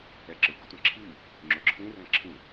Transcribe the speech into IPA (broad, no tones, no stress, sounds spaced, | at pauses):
ɛ ǁ ɪ ɡ ʊ tʷ ɛ̃ ǁʰ i | ŋ͡ǁ ʊ ǁʰ ĩ r ɛ̃ ǁʰ ĩ